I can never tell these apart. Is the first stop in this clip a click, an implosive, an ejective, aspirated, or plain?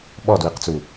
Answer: implosive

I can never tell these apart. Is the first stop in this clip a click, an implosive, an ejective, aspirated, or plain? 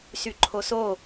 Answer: click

